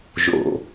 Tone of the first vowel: low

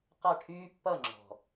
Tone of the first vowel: falling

